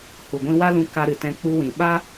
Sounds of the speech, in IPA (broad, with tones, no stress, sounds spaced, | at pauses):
h u˨ ɡʷ ĩ˧ w a˦ l ũ˧ k a˧ ɾ ɨ˨ t ɛ̃˧ k͡p u˧ w ĩ˨ ɓ a˦